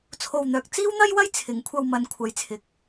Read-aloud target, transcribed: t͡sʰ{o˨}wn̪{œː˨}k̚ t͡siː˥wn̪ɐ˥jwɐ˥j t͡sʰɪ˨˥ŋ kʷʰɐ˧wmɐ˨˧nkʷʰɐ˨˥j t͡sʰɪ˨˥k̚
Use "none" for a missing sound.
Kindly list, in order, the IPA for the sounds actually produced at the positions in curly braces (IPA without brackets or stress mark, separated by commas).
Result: o˨, œː˨